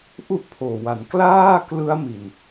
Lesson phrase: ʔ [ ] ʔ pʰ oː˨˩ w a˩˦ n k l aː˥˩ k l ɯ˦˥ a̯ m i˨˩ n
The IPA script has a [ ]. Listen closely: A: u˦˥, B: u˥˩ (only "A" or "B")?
B